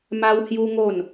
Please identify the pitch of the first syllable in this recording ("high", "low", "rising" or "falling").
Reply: high